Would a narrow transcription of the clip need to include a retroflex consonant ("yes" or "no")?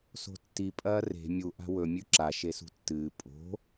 no